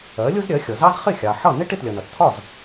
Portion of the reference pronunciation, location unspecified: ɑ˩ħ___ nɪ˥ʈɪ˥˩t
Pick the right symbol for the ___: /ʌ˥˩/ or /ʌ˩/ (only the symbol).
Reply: ʌ˥˩